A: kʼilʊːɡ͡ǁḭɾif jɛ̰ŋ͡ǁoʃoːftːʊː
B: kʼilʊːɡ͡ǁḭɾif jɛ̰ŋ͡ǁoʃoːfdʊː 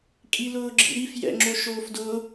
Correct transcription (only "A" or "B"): B